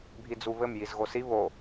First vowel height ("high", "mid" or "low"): high